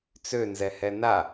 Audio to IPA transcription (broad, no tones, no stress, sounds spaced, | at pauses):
t͡s ø n z ɛ h ɛ n a